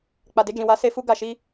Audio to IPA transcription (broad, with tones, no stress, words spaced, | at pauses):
k͡pa˨de˧d͡ʒĩ˨wa˧ se˧fu˧ ɡa˨ʃi˧